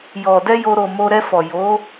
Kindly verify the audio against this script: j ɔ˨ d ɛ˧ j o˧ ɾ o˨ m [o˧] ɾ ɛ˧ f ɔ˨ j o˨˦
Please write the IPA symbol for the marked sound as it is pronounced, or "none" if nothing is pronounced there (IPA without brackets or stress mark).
o˧